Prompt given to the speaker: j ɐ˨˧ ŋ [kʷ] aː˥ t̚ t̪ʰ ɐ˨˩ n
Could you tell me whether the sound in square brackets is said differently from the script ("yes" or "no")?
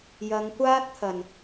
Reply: no